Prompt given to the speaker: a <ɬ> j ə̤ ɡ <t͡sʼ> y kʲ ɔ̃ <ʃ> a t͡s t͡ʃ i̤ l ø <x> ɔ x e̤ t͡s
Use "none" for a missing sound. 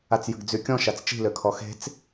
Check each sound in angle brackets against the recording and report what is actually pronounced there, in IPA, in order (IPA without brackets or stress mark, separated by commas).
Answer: t͡s, d͡z, ʃ, kʰ